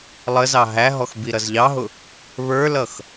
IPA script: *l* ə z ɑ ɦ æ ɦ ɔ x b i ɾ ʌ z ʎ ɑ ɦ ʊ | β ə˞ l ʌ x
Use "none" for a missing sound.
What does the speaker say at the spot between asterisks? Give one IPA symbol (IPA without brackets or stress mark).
lˠ